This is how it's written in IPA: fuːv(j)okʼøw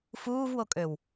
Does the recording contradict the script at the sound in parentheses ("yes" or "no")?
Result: yes